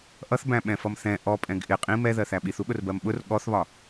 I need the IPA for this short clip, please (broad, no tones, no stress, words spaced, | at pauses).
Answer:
ʔʌθbæ̃ɓɛ̃fʌm θɛ̃ ʔɔpʼɛ̃ɡ ʔɪ qʼĩm ɛðɜθæ ɓiθuɠʊrbɜm ɓʊr ɠɔθβɒ